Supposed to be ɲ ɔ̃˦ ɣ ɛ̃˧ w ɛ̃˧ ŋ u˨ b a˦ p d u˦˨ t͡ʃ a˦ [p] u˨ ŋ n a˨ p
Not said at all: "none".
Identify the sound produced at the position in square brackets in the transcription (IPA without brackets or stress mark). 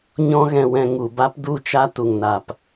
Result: t